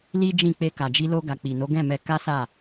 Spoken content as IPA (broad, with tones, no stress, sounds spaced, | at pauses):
l i˦ d͡ʒ ĩ˦˨ k͡p e˧ k a˨ d͡ʒ i˧ l o˧ ɡ a˨ k͡p i˨ n o˨˦ ɡ ɛ̃˦˨ m ɛ˧ k a˦ s a˦˨